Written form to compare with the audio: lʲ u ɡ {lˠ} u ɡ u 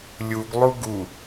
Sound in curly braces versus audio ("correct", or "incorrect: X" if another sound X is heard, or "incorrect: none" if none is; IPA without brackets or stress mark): correct